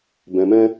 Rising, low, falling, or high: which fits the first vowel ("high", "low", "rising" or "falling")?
low